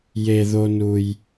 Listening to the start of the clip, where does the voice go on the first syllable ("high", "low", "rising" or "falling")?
low